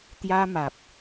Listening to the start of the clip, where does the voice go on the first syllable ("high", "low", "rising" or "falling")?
high